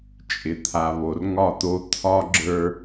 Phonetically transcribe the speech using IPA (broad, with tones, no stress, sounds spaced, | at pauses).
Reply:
t͡ʃʼ ɪ˨ t̪ʰ a˨ β o˨ r ŋ ɒ˦˨ t̪ o˦ t̪ʰ ɒ˦ ɡ͡ǁ ə˞˦